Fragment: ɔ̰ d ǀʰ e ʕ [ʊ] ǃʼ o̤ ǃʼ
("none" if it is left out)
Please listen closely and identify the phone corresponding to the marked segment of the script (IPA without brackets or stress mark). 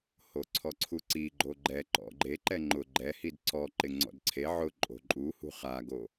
ʊ